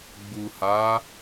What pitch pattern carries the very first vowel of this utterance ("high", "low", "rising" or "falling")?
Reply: low